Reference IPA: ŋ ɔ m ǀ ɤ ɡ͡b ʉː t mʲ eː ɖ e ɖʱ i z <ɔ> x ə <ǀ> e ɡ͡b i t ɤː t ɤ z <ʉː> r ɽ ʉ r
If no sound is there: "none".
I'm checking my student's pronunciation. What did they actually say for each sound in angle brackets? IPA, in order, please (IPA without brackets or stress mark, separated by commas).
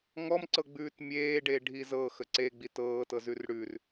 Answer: ɤ, ǀ, ʉ